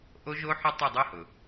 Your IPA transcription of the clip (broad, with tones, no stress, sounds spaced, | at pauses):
ʔ o˦˥ ʒ o˦˥ ħ ʊ˦˥ tˤ ɯ˦˨ dˤ o˦˥ h ʊ˩